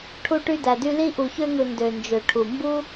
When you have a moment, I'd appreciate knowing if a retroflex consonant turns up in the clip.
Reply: yes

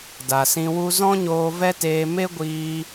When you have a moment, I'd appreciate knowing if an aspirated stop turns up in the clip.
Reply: no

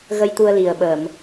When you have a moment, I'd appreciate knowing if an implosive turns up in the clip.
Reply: yes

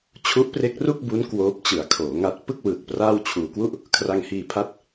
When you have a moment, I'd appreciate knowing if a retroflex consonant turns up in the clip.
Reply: no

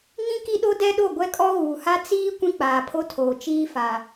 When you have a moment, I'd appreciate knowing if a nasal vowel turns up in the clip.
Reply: yes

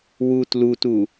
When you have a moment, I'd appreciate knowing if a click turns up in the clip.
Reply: no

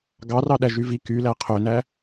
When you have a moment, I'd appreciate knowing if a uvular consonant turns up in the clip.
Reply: yes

